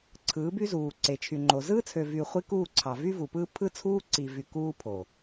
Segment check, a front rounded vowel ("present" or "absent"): present